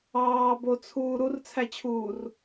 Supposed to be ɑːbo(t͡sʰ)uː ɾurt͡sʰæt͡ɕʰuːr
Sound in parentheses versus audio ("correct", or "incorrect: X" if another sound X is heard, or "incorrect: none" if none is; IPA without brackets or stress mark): correct